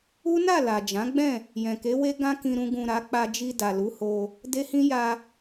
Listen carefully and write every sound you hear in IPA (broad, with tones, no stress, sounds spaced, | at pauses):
u˦ n a˦˨ l a˨ d͡ʒ ã˨˦ ɡ͡b ɛ̃˦˨ | j ɛ̃˨ k e˨˦ w e˦ ɡ ã˦ k ĩ˧ ɾ ũ˧ ɡ ũ˨ ɾ a˨˦ k͡p a˧ d͡ʒ i˧ d a˨ l u˨˦ h o˧ | d e˦ h ĩ˦ j a˧